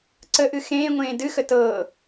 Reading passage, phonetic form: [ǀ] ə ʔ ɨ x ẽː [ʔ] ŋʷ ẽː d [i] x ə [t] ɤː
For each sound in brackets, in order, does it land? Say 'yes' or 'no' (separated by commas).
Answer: yes, no, no, yes